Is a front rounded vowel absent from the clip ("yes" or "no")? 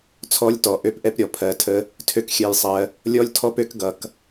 no